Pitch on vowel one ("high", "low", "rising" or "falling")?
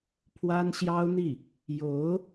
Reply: high